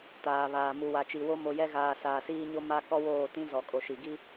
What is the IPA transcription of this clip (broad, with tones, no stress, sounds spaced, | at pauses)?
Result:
t aː˨ β aː˨ m u˨ w a˨ t͡ʃ i˨ w o˦ m o˨ j ɛ˦ ɣ aː˨ s aː˨ s iː˦ ɲ o˦ m a˦ k ɔ˦ w oː˦˨ t ĩ˦ z ɔ˨ kʼ o˨ ʃ i˨ ɡ i˦